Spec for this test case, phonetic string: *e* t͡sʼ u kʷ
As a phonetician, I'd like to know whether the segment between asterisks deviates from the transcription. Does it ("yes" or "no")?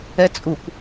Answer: yes